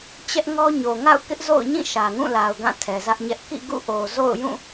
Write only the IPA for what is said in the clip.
t͡ɕ ɛ˦ ʔ ŋ ɔ˦ ɲ o˨ ŋ a̰˦˨ ʊ̯ k ɪ˦ ʔ z o̰˦˨ ʊ̯ ɲ ĩ˦˨ ʃ ä˨ ŋ ũ˦˨ l a˨ ʊ̯ ɡ ã˦˨ tʰ ɛ˨ z ä˦ ʔ ɲ ɛ˦ ʔ k ḭ˦˨ ɡ ṵ˦˨ ʔ o˨ z o̰˦˨ ʊ̯ j ũ˦˨

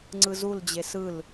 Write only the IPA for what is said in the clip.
ŋ͡ǀ ɯ z u l d͡ʑ e s ɯ l

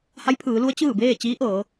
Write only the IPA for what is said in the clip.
h a˧˥ j pʰ ɯː˩˧ l u˧˥ ə̯ t͡ɕ ɯː˥˨ b eː˥˨ t͡ɕ iː˧˥ ʔ ɤː˩˧

